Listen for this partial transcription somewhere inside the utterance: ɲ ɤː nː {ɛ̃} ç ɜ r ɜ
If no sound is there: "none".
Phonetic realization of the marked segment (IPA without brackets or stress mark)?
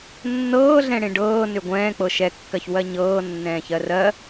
ɛ̃ː